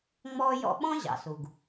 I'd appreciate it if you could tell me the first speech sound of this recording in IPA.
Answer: ŋ͡m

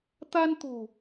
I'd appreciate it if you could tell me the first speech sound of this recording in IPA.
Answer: t̪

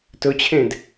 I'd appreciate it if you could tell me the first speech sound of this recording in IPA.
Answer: t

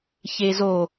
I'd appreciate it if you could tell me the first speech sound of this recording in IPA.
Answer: ç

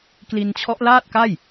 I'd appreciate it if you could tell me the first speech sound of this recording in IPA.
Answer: k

